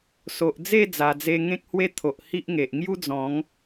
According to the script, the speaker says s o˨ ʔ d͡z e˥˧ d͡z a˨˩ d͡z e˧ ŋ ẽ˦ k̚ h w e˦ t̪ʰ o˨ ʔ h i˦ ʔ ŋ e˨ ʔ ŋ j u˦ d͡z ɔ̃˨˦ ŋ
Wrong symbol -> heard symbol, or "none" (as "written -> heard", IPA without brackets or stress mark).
none